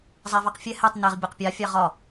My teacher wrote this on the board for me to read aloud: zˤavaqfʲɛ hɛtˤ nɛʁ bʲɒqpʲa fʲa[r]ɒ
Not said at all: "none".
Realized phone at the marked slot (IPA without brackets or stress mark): ʁ